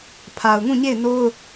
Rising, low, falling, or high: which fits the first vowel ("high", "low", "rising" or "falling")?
low